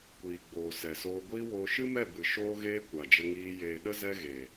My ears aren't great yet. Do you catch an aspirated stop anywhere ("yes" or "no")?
no